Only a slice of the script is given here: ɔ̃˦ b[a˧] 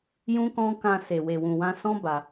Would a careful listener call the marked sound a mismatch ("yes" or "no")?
no